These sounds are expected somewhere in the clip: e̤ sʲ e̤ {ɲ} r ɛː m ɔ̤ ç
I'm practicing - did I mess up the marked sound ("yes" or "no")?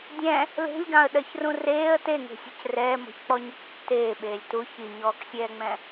yes